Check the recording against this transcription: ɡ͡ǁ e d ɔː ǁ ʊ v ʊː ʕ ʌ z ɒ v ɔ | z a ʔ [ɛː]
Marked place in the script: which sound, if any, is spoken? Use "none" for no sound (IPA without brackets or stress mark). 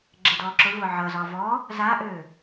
øː